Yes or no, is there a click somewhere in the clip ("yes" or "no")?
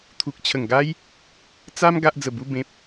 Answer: no